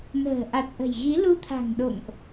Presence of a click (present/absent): absent